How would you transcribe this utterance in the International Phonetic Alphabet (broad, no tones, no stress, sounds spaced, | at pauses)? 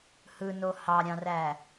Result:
h ɯ n o h ɑ ɾʲ ɑ̃ r æ